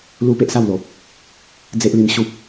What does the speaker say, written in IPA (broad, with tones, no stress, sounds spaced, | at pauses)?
l u˦ p e˦ ʔ s a˥˧ w l o˨ p̚ | d͡z e˦ ʔ l i˧ m ɕ u˦ p̚